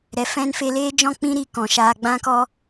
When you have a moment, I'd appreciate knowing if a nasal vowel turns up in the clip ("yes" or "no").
yes